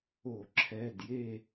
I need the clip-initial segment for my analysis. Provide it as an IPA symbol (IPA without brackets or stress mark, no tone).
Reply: o